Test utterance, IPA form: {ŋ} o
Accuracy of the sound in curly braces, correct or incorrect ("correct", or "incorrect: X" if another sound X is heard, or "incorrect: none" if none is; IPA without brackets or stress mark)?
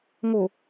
correct